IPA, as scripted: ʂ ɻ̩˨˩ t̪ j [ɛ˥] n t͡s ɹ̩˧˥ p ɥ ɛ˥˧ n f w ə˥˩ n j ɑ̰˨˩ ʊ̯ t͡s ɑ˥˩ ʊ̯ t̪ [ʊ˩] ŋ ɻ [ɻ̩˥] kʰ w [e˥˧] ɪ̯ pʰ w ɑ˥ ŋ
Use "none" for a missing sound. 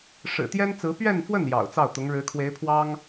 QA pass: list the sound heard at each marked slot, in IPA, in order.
ɛ˥, ʊ˧˥, ɻ̩˧˥, e˧˥

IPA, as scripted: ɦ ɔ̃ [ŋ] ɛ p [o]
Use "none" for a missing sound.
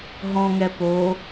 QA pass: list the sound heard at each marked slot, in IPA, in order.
ŋ, o

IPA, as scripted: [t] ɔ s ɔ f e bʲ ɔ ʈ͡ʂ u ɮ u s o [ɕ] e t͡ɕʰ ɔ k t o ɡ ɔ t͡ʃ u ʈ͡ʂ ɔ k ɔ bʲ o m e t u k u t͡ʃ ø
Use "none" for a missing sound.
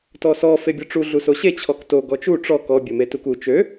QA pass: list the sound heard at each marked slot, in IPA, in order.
t, ɕ

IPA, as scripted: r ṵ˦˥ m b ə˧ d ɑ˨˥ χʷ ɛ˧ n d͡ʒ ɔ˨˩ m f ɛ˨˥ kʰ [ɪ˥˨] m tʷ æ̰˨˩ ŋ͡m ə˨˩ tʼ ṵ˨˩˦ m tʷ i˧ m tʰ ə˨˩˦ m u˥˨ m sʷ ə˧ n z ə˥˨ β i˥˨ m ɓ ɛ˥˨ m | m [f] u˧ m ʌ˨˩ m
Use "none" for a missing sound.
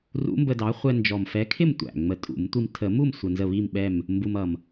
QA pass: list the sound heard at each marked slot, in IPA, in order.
ɪ˥˨, b

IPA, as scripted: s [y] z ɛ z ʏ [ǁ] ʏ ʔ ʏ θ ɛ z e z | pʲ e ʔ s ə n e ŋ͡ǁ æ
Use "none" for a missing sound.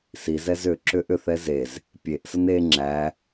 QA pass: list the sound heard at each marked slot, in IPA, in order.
i, ǁ

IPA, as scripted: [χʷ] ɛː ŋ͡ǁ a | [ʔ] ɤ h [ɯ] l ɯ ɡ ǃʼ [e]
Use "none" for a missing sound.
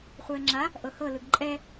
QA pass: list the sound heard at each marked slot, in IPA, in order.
χʷ, ʔ, ɤ, ɛ

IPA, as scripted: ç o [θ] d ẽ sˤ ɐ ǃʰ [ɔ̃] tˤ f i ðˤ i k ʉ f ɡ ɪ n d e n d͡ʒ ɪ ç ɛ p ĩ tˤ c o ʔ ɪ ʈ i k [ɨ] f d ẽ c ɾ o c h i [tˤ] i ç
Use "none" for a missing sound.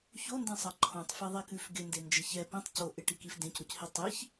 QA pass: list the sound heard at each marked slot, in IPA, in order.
n, õ, i, tˤ

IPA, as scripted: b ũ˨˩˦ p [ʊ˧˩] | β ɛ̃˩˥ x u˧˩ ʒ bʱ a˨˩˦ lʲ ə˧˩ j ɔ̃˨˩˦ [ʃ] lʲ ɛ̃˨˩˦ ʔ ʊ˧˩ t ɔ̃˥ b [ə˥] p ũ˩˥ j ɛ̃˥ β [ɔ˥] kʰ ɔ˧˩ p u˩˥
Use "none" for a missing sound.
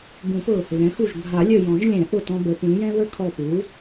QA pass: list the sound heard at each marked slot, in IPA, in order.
ʊ˧˩, ʒ, ə˩˥, ə˥

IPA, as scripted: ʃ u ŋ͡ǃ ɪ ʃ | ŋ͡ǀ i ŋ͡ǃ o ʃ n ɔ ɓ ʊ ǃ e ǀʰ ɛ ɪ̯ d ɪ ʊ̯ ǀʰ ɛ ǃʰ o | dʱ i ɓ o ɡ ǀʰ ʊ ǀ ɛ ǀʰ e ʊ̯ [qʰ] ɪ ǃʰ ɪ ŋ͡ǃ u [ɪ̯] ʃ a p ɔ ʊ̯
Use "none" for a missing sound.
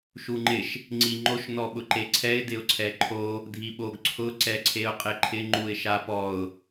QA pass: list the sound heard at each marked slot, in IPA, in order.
qʼ, ɪ̯

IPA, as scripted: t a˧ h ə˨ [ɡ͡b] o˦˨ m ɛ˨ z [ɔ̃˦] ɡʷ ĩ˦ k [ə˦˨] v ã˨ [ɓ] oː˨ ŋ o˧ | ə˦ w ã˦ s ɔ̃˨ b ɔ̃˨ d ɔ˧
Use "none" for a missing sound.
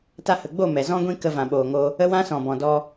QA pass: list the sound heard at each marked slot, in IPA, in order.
ɡ͡b, ɔ̃˦, ə˧, ɓ

